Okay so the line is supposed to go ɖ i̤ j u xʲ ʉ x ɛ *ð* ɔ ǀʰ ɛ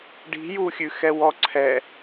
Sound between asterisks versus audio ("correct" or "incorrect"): incorrect